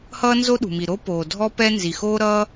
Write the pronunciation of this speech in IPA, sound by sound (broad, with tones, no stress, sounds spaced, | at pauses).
h ʌː˥ n z o˥ ɗ ṳ˩ m i˩ ɾ o˥ p oː˩ dʱ ɔ˥ p ɛ˥ n z i˩ x oː˥ ɾ ʌː˥